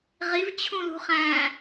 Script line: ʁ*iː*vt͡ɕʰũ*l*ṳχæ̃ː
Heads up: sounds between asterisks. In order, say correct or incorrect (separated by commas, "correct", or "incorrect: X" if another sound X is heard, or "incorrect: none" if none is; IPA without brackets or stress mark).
incorrect: i, correct